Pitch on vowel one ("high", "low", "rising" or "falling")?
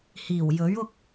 low